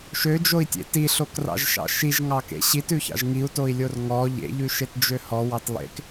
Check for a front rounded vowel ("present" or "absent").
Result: present